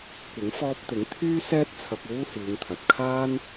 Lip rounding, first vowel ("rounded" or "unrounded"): unrounded